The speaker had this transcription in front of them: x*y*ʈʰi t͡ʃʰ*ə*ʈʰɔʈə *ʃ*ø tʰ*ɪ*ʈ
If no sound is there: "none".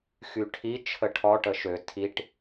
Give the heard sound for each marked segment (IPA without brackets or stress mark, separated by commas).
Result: y, ə, ʃ, i